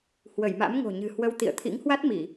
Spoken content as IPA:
h w ə˧˩ j m a̰˧˥ m ŋ o̤˨˩ ɲ ɨ̤˨˩ h w ə˧ w t̪ ḭ˧˨ ə̯ t̪ʰ ḭ˧˥ ŋ h w a˦˥ t̚ m i˧˩˨

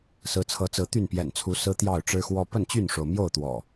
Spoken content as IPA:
s ɹ̩˨˦ t͡sʰ ɤ˨˦ t͡s ɹ̩˨˦ t̪ y˥˨ n p j ɛ̰˨˩ n t͡sʰ u˨˦ s ɹ̩˦ t̪ j ɑ˥˨ ʊ̯ ʈ͡ʂ ɻ̩˦ x w ɔ˦ p ə˥˨ n t͡ɕ y˥˨ n ʂ o˩ ʊ̯ m j o˥˨ ʊ̯ t̪ w ɔ̰˨˩

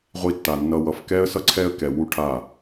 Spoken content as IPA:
ʁʷ i˧ tː a˨ nː ʌ˧ w ʌ˨ f k ɛ˦ ə̯ s ʌ˦ ǀʰ ɛ˦ ə̯ k ɛ˨ w u˦ ʈʰ a˦˨

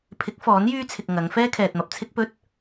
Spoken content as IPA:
pʰ ɪ˨˥ k̚ f ɔː˨˥ n j yː˥ t͡sʰ ɪ˨ k̚ ŋ ɐ˨˧ ŋ f ɛː˥ kʰ ɛː˨ t̚ m ɐ˨ p̚ t͡sʰ ɪ˥ k̚ p ɵ˥ t̚

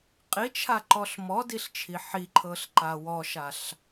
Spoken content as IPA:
qʼ i t͡ʃʰ a ǃ ɔ ɬ m ɔ d i ɬ t͡ʃʰ i ħ i ǃʰ ɤ ɬ ǃ a w ɔ ʃ a ɬ

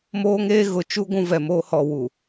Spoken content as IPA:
m oː˦ ŋ eː˦ ɣ ʊ˨ t͡ʃ u˦ ɡʷ ũ˦ v ɛ˨ m oː˦ h ɔ˨ w u˨

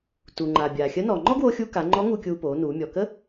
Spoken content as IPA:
t uː˩ ŋ͡ǃ aː˩ bʲ aː˩ xʲ ə˧˥ n ɔː˩ ŋ͡ǃ ɔ˥ ɡ w oː˧ xʲ uː˧ k a˩˧ ŋ͡ǃ ɔ˧˥ ŋ u˧ kʲ uː˧ p oː˩˧ n uː˩˧ mʲ ɔ˩ k ə˥

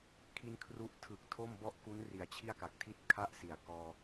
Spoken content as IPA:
kʰ i˧ n kʰ r u˦˥ ʔ tʰ ɯ˨˩ k̚ tʰ o˥˩ m b ɔ˥˩ ʔ k u˦˥ n r i˩˦ a̯ t͡ɕʰ i˥˩ a̯ k a˨˩ k̚ tʰ i˥˩ t̚ kʰ a˥˩ ʔ s i˩˦ a̯ k ɔː˧

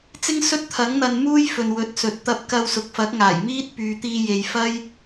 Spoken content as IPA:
t͡s ɪ˥ ŋ s ɵ˥ t̚ t̪ʰ ɐ˨˥ ŋ n̪ ɐ˧ n m uː˥ j f ɵ˨ n w ɵ˨˥ t̚ s ɵ˨ t̚ t̪ ɐ˧ p̚ k ɐ˧ w s ʊ˨ k̚ f ɐ˨˥ k̚ ŋ aː˨˩ j m iː˥ t̚ p yː˨ t̪ iː˧ j e˨ j f ɐ˥ j

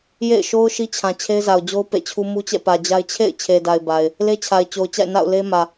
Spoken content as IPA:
j ḛ˦˨ ɪ̯ ʃ o˦ ʊ̯ ʃ i˦ t͡ɕʰ ã˨ t͡ɕʰ e˦ ɪ̯ z a˨ ʊ̯ d͡ʑ o˦ ʊ̯ p ḛ˦˨ t͡ɕʰ u˦ m u˦ t͡ɕ ɛ̰˦˨ p ä˨ d͡ʑ a˦ ɪ̯ t͡ɕʰ ḛ˦˨ ɪ̯ t͡ɕʰ e˨ d a˨ ɪ̯ b a˨ ɪ̯ | l e˦ t͡ɕʰ a˨ ɪ̯ t͡ɕ o˨ ʊ̯ t͡ɕ a̰˦˨ ɪ̯ n a̰˦˨ ʊ̯ l e˦ m ä˨

